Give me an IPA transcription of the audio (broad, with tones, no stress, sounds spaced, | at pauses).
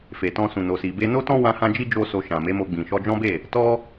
f e˨ t ɔ̃˧ s ũ˨ n o˨ s i˨ b e˧ n o˦ t ɔ̃˦ w ã˦ h ã˦ d͡ʒ i˦ d͡ʒ o˦ s o˧ ʃ ã˨ m e˨˦ m o˧ ɡ͡b ĩ˨ ʃ ɔ˧ d͡ʒ ɔ̃˦ b e˦˨ | t ɔ˦